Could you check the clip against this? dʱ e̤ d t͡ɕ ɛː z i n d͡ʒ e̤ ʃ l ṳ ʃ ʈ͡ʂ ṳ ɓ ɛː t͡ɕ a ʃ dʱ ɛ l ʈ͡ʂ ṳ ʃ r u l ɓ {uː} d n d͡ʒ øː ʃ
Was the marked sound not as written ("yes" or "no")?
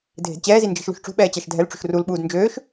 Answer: no